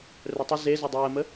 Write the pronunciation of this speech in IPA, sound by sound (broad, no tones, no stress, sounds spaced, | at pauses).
r œ tˤ ʊ z e z o dˤ əː m ə